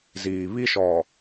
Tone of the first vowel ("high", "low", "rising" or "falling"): low